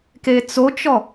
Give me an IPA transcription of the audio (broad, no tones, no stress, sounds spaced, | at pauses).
k e t͡s o t͡ʃ ɔ